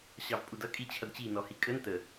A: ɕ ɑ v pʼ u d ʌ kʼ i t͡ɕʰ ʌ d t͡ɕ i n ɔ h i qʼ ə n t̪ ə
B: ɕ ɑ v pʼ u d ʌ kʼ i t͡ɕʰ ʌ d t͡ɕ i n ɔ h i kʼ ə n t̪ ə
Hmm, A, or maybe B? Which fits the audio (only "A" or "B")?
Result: B